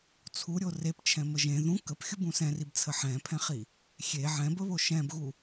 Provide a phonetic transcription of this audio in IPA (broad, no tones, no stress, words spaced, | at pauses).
t͡sʰuɾʲo rept͡ʃʰɛ̃mə ʒẽ ðũ kəpxʲubũ sɛ̃ribt͡sʰə ħɛ̃pʰɛ̃χi | xʲe ʕɛ̃bəβo ʃɛ̃bɣu